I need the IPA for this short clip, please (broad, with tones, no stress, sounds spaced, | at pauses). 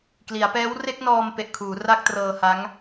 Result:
k l i˩˦ a̯ p ɛː˦˥ w r e˥˩ k̚ n ɔː˧ m p e˨˩ ʔ kʰ uː˩˦ r a˥˩ k̚ t r ɤː˧ h a˦˥ ŋ